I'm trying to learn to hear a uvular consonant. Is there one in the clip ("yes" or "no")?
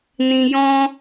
no